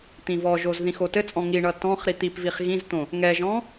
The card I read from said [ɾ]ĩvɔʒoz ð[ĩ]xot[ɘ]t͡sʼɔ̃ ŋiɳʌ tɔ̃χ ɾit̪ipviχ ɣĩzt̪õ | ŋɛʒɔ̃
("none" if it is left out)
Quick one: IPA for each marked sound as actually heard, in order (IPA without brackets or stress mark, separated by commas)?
t̪, ĩ, ɘ